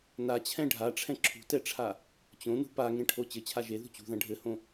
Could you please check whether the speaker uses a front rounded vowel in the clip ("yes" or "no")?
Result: no